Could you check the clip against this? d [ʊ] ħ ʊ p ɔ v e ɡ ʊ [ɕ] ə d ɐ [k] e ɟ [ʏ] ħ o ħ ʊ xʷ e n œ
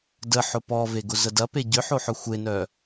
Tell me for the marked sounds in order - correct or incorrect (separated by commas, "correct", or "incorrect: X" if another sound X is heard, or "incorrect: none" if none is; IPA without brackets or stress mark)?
incorrect: ə, incorrect: z, incorrect: p, correct